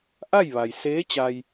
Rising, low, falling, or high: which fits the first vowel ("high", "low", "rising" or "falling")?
falling